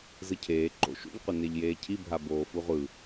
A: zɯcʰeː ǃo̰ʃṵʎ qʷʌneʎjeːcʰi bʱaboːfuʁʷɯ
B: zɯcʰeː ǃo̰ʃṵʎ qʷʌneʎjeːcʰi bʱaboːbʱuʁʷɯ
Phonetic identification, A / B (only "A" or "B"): A